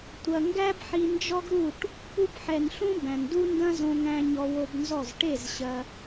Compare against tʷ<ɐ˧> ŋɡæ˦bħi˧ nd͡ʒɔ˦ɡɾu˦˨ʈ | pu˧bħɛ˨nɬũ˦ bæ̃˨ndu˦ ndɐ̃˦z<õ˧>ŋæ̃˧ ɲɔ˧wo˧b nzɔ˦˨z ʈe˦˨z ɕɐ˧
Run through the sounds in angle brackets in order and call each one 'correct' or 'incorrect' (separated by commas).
incorrect, correct